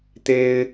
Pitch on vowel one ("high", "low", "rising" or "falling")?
high